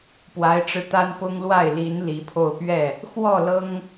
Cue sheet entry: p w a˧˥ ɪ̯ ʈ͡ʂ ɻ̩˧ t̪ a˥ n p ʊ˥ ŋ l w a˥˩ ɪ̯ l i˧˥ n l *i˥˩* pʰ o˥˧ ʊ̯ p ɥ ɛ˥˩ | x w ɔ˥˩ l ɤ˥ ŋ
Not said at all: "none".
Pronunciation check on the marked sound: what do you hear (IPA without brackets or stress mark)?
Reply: i˧˥